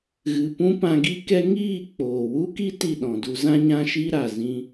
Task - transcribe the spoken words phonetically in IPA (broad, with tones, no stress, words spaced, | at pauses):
ɣɨ˨pũ˦ pã˧ɡi˦kɛ˦ ŋiː˦˨ k͡poː˨wu˦ki˦ ti˦˨ɗɔ̃˨du˧ zã˦ɲã˦ʃi˦ɾa˨ zĩ˧